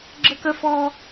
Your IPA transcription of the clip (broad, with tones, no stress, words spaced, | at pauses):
ɡ͡ǁə˥kə˥fɔ˥